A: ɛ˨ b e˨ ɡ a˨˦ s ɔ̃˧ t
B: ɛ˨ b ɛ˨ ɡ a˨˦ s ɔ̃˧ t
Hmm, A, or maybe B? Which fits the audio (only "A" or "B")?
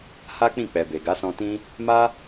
A